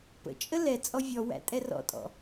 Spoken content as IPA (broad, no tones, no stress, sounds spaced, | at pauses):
p ə̰ t͡ʃʼ ə l ɛ t͡sʼ ɔ vʲ ɔ w æ̰ tʼ ɛ r ɔ̰ tʼ ɔ̰